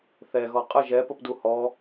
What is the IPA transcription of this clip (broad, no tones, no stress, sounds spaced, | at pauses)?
θ ɛ ɣ ɔ qʼ ə ʒ ɛ p ə p d u h ɔ